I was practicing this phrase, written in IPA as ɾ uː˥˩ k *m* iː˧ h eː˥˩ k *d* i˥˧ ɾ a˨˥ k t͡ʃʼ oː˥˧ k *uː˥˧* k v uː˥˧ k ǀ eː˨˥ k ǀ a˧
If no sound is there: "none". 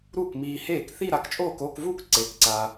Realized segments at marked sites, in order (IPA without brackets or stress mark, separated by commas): m, θ, oː˥˧